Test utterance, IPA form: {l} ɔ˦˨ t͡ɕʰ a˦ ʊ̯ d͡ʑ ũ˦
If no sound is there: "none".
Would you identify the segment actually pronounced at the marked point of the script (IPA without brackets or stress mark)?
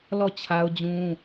l